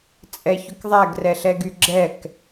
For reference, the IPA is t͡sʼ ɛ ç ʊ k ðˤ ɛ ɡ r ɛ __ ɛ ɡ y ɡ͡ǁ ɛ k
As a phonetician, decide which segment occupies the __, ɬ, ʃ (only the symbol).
ɬ